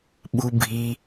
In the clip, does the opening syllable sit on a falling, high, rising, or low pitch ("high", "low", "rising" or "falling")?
low